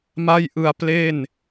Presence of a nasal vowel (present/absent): absent